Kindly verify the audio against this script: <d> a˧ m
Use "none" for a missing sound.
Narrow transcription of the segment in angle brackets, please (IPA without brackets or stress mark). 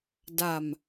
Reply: d